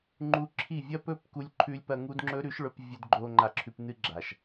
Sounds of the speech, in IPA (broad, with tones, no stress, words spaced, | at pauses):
ŋ͡ǃu˧ǁʰi˦˨ vʲɐ˦pɵ˦p ku˦lʲ ǃʰʉ˧lʲpɐ˧ ŋu˦dŋ͡ǁɵ˦ɾʉ˦ʃɭɵ˧p vʲɵ˧dɡ͡ǃo˧ ŋ͡ǃa˧ǁʰʉ˧p nɨ˦ɡ͡ǁa˨ʃ